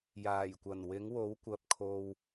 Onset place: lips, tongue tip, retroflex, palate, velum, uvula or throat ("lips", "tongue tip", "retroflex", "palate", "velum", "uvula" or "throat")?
palate